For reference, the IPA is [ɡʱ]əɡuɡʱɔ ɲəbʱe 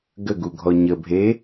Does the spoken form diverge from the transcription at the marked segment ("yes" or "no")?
yes